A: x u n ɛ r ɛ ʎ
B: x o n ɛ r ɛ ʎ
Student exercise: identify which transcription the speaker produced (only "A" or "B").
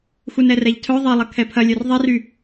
A